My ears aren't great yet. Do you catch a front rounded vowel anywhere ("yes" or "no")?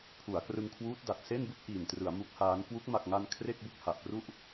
no